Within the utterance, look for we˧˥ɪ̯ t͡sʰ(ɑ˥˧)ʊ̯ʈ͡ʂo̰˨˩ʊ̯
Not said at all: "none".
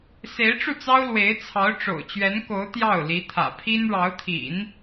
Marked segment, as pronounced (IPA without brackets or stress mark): ɑ˧˥